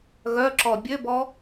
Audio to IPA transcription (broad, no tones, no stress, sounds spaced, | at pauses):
ɣ œ ǁ ɔ bʲ ø b ɔ